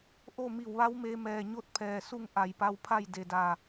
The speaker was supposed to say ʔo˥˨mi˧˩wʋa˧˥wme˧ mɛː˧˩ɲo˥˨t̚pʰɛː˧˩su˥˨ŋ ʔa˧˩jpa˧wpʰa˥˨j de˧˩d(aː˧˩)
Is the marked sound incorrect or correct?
correct